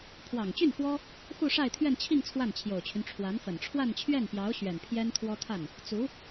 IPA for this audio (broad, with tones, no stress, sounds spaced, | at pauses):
pʰ w ɑ˨˩ ŋ t͡ɕ y˥˩ n x w ɔ˥ | x u˥˧ ʂ a˥˧ ɪ̯ t̪ʰ ɥ ɛ˥˧ n t͡ɕʰ i˥˧ ŋ t͡sʰ w a˥˩ n t͡ɕʰ j o˨˩ ʊ̯ t͡ɕʰ y˦ n ʈ͡ʂʰ w a˧˥ n f ə˨˩ n ʈ͡ʂʰ w a˥˧ n t͡ɕʰ ɥ ɛ˥˩ n p j ɑ˧˥ ʊ̯ ɕ ɥ ɛ˨˩ n pʰ j ɛ˥ n t̪ʰ w ɔ˥ t̪ʰ a˥˩ n | t͡s u˧˥